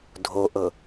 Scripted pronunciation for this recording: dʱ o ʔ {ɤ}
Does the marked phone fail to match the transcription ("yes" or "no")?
no